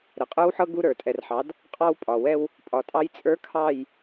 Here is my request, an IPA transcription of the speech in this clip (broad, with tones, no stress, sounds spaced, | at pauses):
ɾ ə˨ qʼ ə˞˦ w ħ ɤ˦ ɡ u˦ ɾ ə˞˨ tʼ ɛ˨ r ħ ɑ˨˦ d | qʼ ɑ˦ w pʼ ɒ˨ w ɛ˦ w | pʼ ɒ˨ tʼ ɑ˦ j t͡sʼ ə˞˦ kʰ ɑ˦˨ j